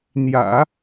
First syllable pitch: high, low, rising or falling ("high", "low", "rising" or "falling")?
low